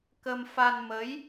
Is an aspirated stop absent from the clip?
yes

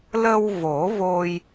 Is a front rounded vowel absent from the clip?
yes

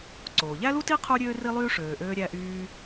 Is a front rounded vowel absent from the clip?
no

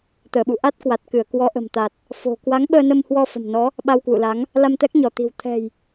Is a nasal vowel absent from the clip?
yes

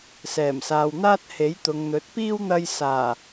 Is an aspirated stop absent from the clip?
yes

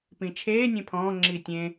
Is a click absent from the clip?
no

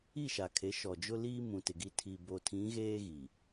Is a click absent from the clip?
yes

